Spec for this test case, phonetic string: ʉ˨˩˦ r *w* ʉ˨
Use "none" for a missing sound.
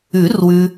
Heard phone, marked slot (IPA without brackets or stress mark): w